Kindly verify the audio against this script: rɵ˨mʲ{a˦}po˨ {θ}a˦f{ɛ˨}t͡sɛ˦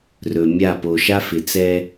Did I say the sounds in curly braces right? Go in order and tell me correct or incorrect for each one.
incorrect: a˦˨, incorrect: ʃ, incorrect: ɪ˨

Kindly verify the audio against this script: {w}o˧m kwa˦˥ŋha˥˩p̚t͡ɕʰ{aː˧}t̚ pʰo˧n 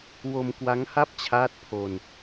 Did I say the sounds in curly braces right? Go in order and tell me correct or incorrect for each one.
correct, incorrect: aː˦˥

